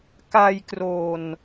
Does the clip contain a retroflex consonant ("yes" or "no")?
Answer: no